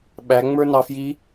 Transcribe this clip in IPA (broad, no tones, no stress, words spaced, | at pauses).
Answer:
ɓæŋ͡mə˞nɑfji